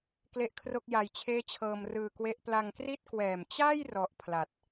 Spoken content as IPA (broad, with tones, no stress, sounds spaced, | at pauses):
k l e˥˩ ʔ kʰ r o˥˩ k̚ j a˧ j t͡ɕʰ eː˥˩ t͡ɕʰ ɤː˧ m r ɯː˧ k w e˦˥ ʔ p l a˧ ŋ k r i˥˩ t̚ k w ɛː˨˩ m t͡ɕ a˥˩ j r ɔ˦˥ ʔ pʰ l a˨˩ t̚